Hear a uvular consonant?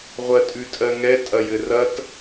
yes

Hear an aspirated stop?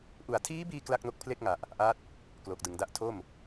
yes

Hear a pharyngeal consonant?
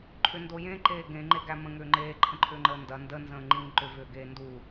no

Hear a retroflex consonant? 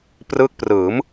no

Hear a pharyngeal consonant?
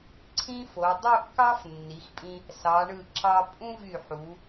yes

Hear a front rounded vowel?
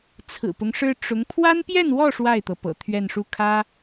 no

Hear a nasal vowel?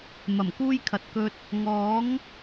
no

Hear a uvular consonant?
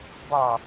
no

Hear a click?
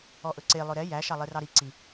yes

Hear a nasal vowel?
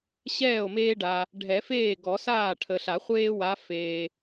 no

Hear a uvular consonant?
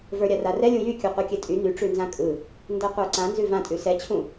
yes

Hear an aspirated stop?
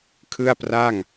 yes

